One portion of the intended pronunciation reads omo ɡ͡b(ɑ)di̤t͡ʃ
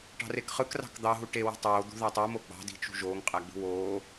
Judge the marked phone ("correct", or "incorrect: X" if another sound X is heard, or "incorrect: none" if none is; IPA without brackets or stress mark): incorrect: ɑ̤